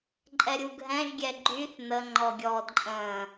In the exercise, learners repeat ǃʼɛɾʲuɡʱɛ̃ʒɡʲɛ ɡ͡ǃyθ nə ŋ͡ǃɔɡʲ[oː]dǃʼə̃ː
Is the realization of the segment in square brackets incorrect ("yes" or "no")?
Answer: yes